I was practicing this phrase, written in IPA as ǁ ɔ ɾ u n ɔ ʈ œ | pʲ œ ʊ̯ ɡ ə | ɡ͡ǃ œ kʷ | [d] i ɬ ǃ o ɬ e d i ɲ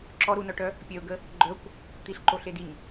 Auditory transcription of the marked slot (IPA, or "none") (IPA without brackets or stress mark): t̪